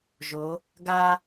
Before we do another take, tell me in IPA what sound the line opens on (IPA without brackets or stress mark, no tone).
ʒ